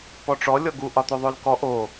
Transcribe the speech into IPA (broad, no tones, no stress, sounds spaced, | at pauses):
p ɔ ʈ͡ʂ ɔ lʲ ɔ ɡ u ʔ ɒ t̪ o ðˤ o l k ɔ ʔ o